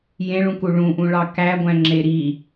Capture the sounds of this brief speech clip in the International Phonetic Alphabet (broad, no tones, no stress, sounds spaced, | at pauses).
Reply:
j ẽ ɭ ũ k u ɭ ũ ʔ ũ ɭ ɑ k æ ɡʷ æ̃ ŋ͡ǁ e ɾ i